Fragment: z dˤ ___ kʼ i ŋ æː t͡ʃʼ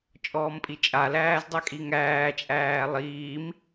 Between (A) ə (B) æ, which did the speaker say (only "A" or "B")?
B